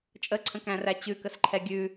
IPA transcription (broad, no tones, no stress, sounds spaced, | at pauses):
t͡ʃʼ ə ǀʰ ə̃ k æ̃ r æ t͡ɕ ʉ k ə s ǃʰ ɛ ɡʲ ʉ